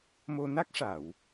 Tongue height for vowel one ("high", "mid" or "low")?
mid